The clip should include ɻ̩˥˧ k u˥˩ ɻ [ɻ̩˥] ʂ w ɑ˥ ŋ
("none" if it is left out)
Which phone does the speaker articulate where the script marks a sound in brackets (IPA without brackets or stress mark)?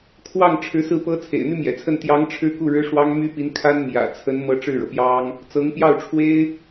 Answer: ɻ̩˥